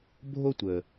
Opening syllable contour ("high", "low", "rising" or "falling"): high